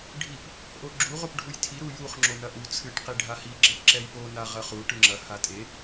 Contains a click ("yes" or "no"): yes